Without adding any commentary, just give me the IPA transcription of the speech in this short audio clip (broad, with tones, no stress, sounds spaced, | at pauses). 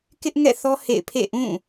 k ɪ˦ ʔ ŋ ɛ̰˦˨ θ ɔ˦ h ḛ˦˨ ɪ̯ pʰ ḛ˦˨ ʔ ũ˦˨